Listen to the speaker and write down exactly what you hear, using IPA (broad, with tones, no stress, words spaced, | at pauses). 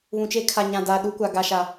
βũ˨t͡ʃe˦ kʰa˨ɲã˨daː˨ ɗu˦kʷa˨ ɡa˨ʃa˨